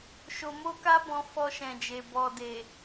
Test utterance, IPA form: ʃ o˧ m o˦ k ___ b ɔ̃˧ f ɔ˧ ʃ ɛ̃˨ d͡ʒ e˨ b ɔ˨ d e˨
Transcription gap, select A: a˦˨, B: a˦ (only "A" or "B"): B